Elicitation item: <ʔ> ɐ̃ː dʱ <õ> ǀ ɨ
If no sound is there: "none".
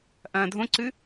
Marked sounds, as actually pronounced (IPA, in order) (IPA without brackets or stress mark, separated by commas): ʔ, õ